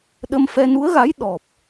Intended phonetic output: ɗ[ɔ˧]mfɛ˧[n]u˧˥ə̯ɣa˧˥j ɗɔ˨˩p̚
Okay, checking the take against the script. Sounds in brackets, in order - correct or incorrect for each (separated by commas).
incorrect, correct